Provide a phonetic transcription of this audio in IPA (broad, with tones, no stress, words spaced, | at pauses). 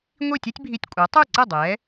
ŋʷi˥˩tʲe˥tʲbʱi˧tʲkʷʼa˩˥ tˤu˥˩ǀɛ˥˩ dˤɛ˩˥